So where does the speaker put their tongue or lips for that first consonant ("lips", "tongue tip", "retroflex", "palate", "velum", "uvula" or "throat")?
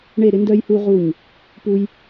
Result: retroflex